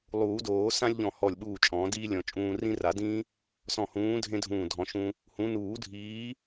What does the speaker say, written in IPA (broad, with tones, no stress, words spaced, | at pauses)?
lˠuː˨˩˦doː˨˩˦ sã˥lʲʎɔ̃˧˩hɔ˧˩lʲɓuː˧˩ t͡ʃʼɔ̃ː˨˩˦diː˥lʲɔ̃˨˩˦ t͡ʃʼũː˧rĩ˥ ra˨˩˦dĩː˥ | sɔ̃˧˩hũː˨˥ dʱẽ˥dʱũː˧˩ dʱɔ̃˨˩˦ʃũ˧ | hũ˨˥ nuː˨˩˦dʱiː˨˥